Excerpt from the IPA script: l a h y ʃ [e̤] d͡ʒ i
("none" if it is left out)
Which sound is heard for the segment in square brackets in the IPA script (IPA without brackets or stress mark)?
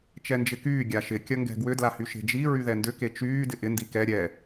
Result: e̤